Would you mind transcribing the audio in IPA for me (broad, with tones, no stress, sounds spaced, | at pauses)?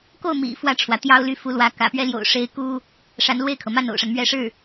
k o˥˩ ʊ̯ m ḭ˨˩ f w ä˥˩ ʈ͡ʂʰ w ä˩ t̪ j ɑ˥ ʊ̯ l y˥˩ f u˧˥ l w ä˧˥ k ä̰˨˩ p ɥ ɛ˥ l j o̰˨˩ ʊ̯ ʂ e˧˥ ɪ̯ k u˥ | ʂ a˧˥ n l w e˥˩ ɪ̯ kʰ ɤ˩ m a˥˩ n o̰˨˩ ʊ̯ ʂ a˦ n m ɥ ɛ˧˥ ʂ ɻ̩˥˩